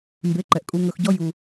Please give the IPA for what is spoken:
m b e˨˦ ǃ ɛ˨ ʔ kʼ u˧ ŋ ɵ˧ x ɟ ɔ˦ j u˧

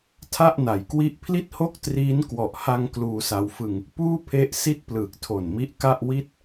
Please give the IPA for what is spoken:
tʰ a˥˩ ʔ n a˩˦ j k w i˥˩ ʔ pʰ l i˥˩ t̚ h o˥˩ k̚ t r iː˦˥ n k w ɔ˨˩ ʔ h a˧ ŋ k l uː˧ s a˧ w f ɯ˧ ŋ | p uː˥˩ pʰ e˦˥ ʔ s i˥˩ t̚ p l ɯː˨˩ k̚ tʰ o˨˩ n m i˦˥ ʔ k a˥˩ ʔ w i˥˩ t̚

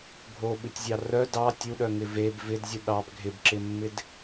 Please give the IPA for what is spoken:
ɡʱ o ɓ ɨ tʲ zʲ ɑ r œ d ɑ tʲ u ɗ œ ŋ ɪ v e b v ɪ d zʲ u ɗ ɑ b ɡʱ ɪ b ǁ ɪ mː ɪ d

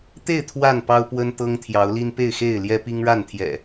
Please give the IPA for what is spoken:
t̪ e˥˨ ɪ̯ t̪ʰ w a˥˨ n p ɑ˦ ʊ̯ p w ə˦ n t̪ ɤ˦ ŋ t̪ʰ j ɑ˨˦ ʊ̯ l i˦ n p e˥˨ ɪ̯ x e˥˨ ɪ̯ l j ɛ˦ p i˦ ŋ ɻ a˥˨ n t̪ʰ j ɛ̰˨˩

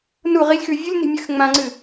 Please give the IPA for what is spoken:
n u ʁ i lʲ x ʉ vʲ u lʲ n i̤ mʲ ɨ x ŋ͡m ã ŋ͡ǀ ɨ

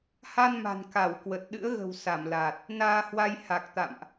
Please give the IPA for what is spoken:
h a˧ n m a̤˨˩ n k a˧˩ w k w ə˨˩ t̚ ɗ ɨ̰˧˥ ə̯ ɣ ə̤˨˩ w s a˧˩ m l aː˨˩ t̚ | n aː˧ h w a˧ j h a˨˩ k̚ t̪ a̰˧˨ m ʔ

